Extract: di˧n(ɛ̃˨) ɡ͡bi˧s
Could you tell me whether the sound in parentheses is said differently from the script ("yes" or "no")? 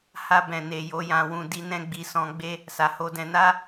yes